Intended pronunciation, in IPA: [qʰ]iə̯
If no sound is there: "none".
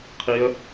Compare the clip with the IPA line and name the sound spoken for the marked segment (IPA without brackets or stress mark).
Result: qʰ